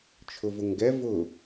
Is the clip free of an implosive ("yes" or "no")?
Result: yes